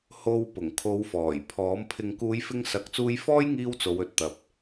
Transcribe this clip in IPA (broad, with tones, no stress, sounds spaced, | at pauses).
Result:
h o˧ w p ʊ˨˩ ŋ kʰ o˨˧ w f ɔː˨˩ j pʰ ɔː˨˥ m pʰ ɪ˧ ŋ k uː˨˧ j f ɪ˧ ŋ s ɐ˨˥ k̚ t͡s uː˧ j f ɔː˥ j ŋ iː˧ w t͡s o˨˧ w ɵ˨ t̚ t̪ ɐ˨ p̚